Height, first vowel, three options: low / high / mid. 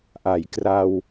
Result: low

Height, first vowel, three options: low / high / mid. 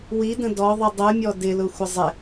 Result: high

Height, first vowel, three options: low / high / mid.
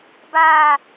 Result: low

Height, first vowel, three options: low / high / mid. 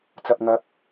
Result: low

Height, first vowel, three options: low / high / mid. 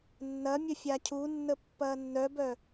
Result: low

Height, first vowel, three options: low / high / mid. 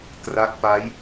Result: low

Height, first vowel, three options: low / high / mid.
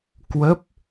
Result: mid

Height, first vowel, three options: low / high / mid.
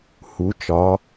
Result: high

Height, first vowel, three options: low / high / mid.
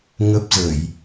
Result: mid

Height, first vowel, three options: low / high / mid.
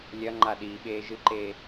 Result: low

